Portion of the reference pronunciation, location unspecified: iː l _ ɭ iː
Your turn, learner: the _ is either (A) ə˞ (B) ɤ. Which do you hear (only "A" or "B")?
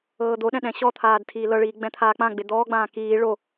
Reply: B